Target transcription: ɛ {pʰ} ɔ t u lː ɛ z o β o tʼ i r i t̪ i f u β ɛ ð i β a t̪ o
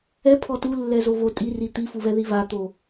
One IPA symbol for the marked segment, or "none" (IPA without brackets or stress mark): pʰ